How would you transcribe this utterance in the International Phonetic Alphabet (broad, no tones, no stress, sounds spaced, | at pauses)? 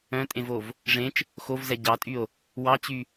œ̃ tʼ ẽ v o v | ʐ ẽ t͡ʃ | x o v z ɛ ɟ ɑ tʼ y o̯ | w ɑ t͡ɕ y